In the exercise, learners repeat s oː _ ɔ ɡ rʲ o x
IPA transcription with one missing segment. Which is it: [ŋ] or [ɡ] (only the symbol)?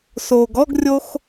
ɡ